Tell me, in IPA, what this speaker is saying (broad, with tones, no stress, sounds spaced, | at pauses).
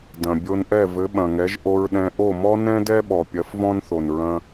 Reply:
d ɐ̃˩ bʲ o˧ n ʔ ɛ˥˩ v ɘ˩˥ ɓ ɐ̃˩ ŋ ɛ˩˥ ʒ ʔ o˧ ɹ ɗ ɛ̃˧ ʔ o˥˩ m ɔ˥ n ɛ̃˥ d ɛ˥ ɓ ɔ˩ pʲ ɐ˩˥ f v ɔ̃˥ n θ o˩ n ɹ ɐ̃˧